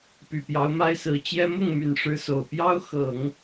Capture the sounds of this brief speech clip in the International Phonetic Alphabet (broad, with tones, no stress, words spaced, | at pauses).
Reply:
py˨˩pjɑ˧˥ʊ̯ma˥ɪ̯sɹ̩˧˥ t͡ɕjɛ˥ mʊ˥˩ŋ my˨˩nʂɻ̩˧˥ so˨˩ʊ̯ pjɑ˥ʊ̯xɤ˨˩˦ŋ